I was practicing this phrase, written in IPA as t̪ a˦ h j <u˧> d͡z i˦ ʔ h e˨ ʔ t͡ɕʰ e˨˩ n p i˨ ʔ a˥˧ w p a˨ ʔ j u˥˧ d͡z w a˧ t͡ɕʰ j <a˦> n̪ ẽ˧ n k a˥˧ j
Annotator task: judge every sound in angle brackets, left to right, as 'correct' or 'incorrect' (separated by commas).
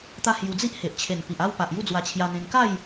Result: correct, incorrect